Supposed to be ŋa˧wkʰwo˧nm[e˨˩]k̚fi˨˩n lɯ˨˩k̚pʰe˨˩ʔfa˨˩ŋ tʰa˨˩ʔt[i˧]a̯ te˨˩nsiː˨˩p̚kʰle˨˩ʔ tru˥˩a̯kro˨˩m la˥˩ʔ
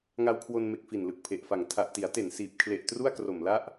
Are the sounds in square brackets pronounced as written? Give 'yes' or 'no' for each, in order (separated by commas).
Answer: yes, no